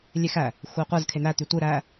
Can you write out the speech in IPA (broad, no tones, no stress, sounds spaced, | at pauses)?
lʲ e x æ | xʷ i qʷ ɯ z kʰ e n̪ æ t̪ y tʷ ɯ ɾ æ